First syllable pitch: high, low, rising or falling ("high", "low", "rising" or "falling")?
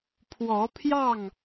rising